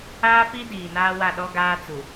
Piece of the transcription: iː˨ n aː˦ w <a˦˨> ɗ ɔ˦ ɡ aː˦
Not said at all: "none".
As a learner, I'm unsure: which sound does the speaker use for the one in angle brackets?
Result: a˦˨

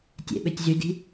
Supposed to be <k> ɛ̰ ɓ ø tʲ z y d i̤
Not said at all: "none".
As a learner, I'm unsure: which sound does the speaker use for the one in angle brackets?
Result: tʲ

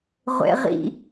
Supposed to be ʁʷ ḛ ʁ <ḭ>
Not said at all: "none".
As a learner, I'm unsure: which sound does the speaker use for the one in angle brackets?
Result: ḭ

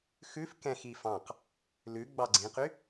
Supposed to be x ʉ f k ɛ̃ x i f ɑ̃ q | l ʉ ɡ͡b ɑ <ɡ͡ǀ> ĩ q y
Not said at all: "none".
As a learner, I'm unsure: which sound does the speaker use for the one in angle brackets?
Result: ɡ͡ǀ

